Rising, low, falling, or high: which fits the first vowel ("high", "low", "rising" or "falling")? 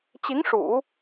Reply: rising